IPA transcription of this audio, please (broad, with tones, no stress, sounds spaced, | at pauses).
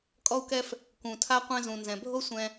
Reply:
kʼ ɔ˧ u̯ k ɛ˧ f | k ũ˩ tʰ a˧ qʷ ɛ̃˧ z ũ˩ n z ɛ̃˩ bʱ o˥ sʷ ɛ̃˧